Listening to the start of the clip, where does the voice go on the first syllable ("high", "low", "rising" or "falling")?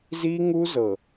high